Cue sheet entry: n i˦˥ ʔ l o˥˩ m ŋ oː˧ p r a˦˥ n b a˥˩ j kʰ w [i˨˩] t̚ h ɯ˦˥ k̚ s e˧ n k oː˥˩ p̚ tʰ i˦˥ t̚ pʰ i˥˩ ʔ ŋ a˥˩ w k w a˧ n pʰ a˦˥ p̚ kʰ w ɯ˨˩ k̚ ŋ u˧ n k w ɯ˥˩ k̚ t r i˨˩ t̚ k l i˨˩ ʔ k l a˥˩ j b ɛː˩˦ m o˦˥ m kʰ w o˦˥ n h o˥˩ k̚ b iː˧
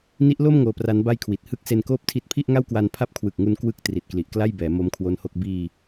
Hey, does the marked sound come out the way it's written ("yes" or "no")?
yes